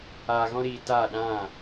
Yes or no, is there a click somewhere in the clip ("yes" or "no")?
no